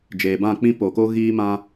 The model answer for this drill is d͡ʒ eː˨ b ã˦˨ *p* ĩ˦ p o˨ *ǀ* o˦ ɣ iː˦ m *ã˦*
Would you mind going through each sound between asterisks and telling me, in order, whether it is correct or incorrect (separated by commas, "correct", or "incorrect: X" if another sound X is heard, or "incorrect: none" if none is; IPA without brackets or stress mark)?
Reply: incorrect: k͡p, incorrect: k, correct